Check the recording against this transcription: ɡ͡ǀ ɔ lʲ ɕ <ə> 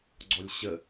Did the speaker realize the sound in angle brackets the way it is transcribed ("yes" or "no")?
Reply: yes